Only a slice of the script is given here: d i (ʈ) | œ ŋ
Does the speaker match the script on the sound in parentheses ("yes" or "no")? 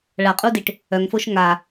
yes